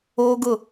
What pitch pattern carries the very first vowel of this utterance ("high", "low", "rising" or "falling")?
high